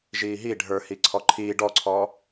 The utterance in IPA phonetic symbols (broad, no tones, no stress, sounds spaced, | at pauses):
ʒ iː ɦ i ɖʱ ə˞ h i ǀʰ ɔ ǃʰ iː ɖ ɔ ǀʰ ɔː